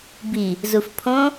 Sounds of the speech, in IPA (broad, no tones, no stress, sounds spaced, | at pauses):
b i | z u f pʰ õ